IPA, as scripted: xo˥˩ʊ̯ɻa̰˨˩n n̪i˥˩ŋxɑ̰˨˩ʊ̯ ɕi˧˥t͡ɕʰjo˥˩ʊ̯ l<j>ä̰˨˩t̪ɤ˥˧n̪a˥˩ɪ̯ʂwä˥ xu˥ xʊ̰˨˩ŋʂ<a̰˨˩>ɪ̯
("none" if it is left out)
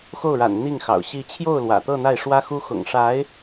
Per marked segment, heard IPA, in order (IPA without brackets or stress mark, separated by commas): w, a˧˥